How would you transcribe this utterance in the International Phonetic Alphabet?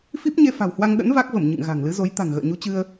f i˦˥ p̚ ɲ e˧ f a̤˨˩ w h w a˧ ŋ ɗ ə̰˧˥ n v a˦˥ k̚ v ə˧˩ m ɲ ɨ̰˧˨ ŋ ɣ a̤˨˩ ŋ l ɨ˨˦ z o˨˦ j t̪ a̤˨˩ ŋ ɣ ə̰ː˧˨ ɲ u˨˦ t͡ɕ ɨ˧ ə̯

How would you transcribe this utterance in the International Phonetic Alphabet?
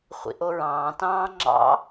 χʷ ḭ ʔ o ɹ ɑ̃ː t ɑ̃ː ŋ͡ǁ ɑ̰

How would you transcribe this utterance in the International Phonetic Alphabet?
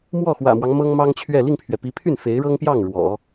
m w ɔ˥˩ x w ä̰˨˩ m w ɑ˦ ŋ m ɤ˥ ŋ m ɑ˥ ŋ t͡ɕʰ ɥ ɛ˥˧ l i˥˩ ŋ pʰ ɥ ɛ˩ p i˧˥ pʰ y˥˩ n f e˧˥ ɪ̯ ɻ ɤ˥ ŋ p j ɑ˥˩ ŋ ɻ w ɔ̰˨˩˦

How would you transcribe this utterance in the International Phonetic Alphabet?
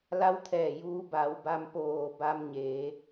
l a˧˥ w t̪ʰ ɛː˧˩ j uː˧ b a˩˧ w b a˧ m p oː˧˩ b a˧ m ɲ eː˩˧

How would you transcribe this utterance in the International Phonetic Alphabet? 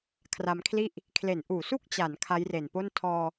kʰ r a˧ m kʰ l i˥˩ ʔ | kʰ l e˩˦ n ʔ uː˩˦ s u˥˩ k̚ t͡ɕ a˩˦ n kʰ a˦˥ j r e˨˩ n p o˥˩ n tʰ ɔː˧

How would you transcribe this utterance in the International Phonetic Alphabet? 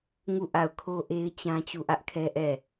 ŋ u˦˨ ʔ a˦˨ ʊ̯ kʰ o˦ ʔ e˦ ɪ̯ t͡ɕ ã˦ t͡ɕ u˦˨ ʔ ä˦ ʔ kʰ ɛ˦ ʔ ɛ˦˨

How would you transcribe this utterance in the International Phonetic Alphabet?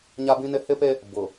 ɲ a˦ b ĩ˦ n ɪ˦ h ɪ˦ p e˦ | b ʊ˨

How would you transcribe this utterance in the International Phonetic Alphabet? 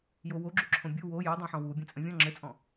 j o w o ɡ͡ǁ u ǁʰ õ bʲ u w o j ɤ dˤ õ ħ ɔ̃ w u bʲ ɛ̃ t͡sʼ ə̃ vʲ ɔ̃ ŋ͡ǁ ɘ t͡sʼ ɔ̃

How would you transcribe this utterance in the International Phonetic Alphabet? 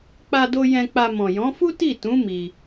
k͡p a˧ d o˧ j ɛ̃˧ k͡p a˧ m ɔ̃˨ j ɔ̃˨˦ f u˦ t i˦˨ t ũ˨˦ m i˧

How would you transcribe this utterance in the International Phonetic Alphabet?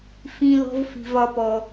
f ĩ˨ l ɔ̤˨ v f i̤˩ v ɒ˨ p ɔ˩

